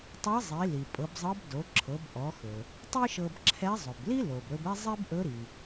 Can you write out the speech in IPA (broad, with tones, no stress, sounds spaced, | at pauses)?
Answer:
tˤ ɤ˧˥ zˤ i˩˧ l i˩ pʼ ɤ˩˧ b zˤ ɤ˧˥ b d o˩˧ ǁʰ ɤ˩˧ b ʔ ɔ˩˧ x ɵ˩ | tˤ i˥ ʃ ɤ˧ b ǁʰ ɛ˧˥ zˤ ɵ˩ b l i˥ l o˩ b ɾ ɵ˧ b ɛ˥ zˤ i˥ b ʔ ɵ˧˥ ɾ i˩